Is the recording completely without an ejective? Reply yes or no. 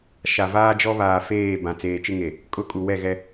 no